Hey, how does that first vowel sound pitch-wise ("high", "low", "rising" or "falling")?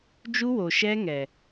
high